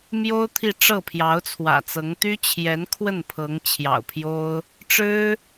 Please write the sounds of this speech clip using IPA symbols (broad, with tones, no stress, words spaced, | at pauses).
mjo˥ʊ̯ t̪ʰi˥˧ ʈ͡ʂɤ˥˩pʰjɑ˧˥ʊ̯t͡sʰwä̰˨˩t͡sɤ˧˥ŋ t̪y˥ t͡ɕʰjɛ˧˥nkʰwə˥˩npʰɤ˧˥ŋ t͡ɕʰjɑ̰˨˩ʊ̯pʰjo˥ʊ̯ | ʈ͡ʂɻ̩˥